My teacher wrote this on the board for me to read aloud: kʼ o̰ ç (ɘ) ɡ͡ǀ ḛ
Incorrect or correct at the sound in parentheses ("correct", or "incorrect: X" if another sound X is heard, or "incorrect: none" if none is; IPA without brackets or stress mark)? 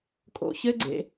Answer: correct